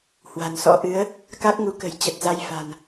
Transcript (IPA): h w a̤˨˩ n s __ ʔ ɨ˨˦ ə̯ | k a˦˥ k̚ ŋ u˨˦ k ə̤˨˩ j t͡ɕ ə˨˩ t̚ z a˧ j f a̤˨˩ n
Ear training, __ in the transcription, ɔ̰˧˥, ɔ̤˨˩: ɔ̰˧˥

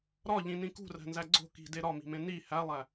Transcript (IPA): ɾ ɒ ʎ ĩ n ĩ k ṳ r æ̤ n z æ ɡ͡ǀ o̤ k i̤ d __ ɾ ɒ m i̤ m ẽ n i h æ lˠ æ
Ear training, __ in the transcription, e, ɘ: e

